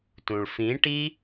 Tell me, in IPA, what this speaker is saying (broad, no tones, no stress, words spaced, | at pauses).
tũɭfĩ ʈi